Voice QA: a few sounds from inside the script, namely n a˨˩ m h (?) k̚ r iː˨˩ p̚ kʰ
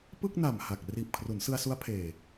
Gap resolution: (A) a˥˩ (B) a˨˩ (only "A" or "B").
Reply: B